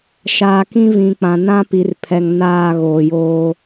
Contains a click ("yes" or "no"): no